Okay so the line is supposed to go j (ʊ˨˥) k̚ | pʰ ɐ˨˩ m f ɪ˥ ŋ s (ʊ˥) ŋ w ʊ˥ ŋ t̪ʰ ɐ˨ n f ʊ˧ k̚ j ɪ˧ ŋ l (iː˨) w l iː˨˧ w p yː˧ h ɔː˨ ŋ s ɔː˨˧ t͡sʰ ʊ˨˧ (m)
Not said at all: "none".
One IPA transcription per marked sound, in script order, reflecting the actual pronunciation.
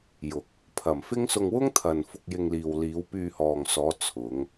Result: ʊ˨, ʊ˧, iː˨, ŋ

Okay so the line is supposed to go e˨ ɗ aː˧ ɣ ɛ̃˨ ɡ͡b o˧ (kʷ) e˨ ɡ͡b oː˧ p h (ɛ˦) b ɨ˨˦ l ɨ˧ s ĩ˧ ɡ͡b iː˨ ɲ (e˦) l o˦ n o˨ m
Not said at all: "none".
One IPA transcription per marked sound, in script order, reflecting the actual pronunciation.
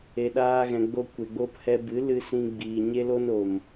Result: kʷ, ɛ˧, e˦

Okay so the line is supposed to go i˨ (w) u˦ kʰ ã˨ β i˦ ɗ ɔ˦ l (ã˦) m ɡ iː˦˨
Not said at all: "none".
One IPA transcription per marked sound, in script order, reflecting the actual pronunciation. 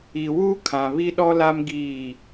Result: w, a˦

